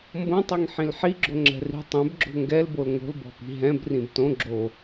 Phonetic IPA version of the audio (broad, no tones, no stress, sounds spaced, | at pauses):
m b õ tˤ ɛ ŋ ħ ĩ l ħ i ɡ͡ǁ o ŋ͡ǁ ɛ̤ r i̤ tˤ ɛ̃ b ɡ͡ǁ o̤ ŋ ɡ ɛ l b o l ŋ o̤ l b ɔ̤ p i̤ ɦ ɛ̃ b r ĩ b t õ ɡ͡ǁ o